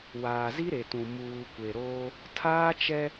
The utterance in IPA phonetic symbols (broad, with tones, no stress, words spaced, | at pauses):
waː˨zi˦ɾe˨tũ˨ muː˨kʷe˨ɾoː˦ | tʰaː˦t͡ʃɛ˦